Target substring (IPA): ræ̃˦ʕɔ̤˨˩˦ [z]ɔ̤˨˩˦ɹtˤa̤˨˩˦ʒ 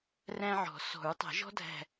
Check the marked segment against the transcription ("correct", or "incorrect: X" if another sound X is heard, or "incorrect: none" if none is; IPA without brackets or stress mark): incorrect: s